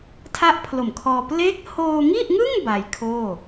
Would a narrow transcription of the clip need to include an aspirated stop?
yes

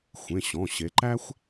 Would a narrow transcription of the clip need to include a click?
yes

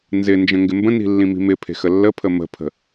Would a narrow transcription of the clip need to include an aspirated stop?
yes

